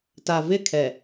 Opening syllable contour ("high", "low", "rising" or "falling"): low